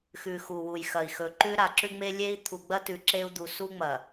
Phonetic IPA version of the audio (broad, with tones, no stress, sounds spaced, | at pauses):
x ʉ˨ x u˨ w u˨ j x ɐ˨ i̯ x ɵ˨ ǃ ʉ˦ ɾ a˨ ǁ ʉ˦ ŋ͡m e˦ lʲ e˦ i̯ t̪ʰ u˨ ɡ͡b ɐ˦ t ʉ˨ ǁ e˦ u̯ d̪ u˨ s u˦ ŋ͡m ɐ˨